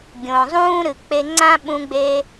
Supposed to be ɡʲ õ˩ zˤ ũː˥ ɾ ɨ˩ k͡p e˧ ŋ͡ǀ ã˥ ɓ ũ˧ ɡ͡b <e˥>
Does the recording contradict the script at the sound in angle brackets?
yes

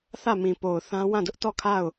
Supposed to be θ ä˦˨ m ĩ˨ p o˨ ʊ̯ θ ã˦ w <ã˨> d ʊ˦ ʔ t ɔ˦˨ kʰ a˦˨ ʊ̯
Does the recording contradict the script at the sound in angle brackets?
yes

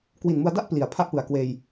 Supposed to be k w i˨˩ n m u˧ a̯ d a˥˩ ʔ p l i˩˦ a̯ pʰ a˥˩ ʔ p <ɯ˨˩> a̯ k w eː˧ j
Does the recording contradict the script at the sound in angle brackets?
no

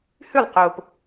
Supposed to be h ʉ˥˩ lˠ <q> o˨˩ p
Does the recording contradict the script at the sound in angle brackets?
no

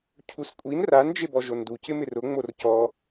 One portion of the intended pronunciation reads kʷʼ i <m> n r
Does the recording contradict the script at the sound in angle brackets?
yes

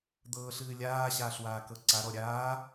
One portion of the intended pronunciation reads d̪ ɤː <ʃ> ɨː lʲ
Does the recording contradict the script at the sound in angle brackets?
yes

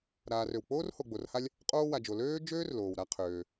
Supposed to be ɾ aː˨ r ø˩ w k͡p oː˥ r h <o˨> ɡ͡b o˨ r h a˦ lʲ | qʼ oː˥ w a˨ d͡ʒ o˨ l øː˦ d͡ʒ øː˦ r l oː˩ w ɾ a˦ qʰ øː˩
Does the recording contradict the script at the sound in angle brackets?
no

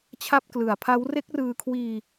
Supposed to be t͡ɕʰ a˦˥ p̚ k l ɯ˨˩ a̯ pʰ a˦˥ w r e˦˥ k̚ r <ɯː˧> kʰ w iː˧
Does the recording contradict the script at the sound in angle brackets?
no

